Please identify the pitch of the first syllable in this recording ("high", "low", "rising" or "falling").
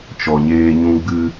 low